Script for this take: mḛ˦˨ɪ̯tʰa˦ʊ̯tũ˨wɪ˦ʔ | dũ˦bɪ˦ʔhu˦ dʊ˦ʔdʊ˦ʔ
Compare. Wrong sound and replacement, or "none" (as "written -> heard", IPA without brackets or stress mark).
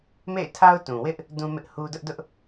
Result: b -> m